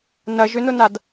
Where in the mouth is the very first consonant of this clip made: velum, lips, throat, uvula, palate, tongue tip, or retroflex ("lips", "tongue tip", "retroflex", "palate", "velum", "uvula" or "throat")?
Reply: tongue tip